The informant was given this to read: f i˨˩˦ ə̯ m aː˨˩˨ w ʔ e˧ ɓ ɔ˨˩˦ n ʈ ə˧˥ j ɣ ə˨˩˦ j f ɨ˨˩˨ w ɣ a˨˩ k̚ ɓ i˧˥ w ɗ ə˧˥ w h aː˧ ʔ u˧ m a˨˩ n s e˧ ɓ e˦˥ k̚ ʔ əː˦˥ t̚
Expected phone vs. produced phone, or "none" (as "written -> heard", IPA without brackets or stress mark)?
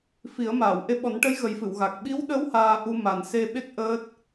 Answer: none